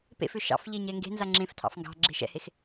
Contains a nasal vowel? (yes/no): yes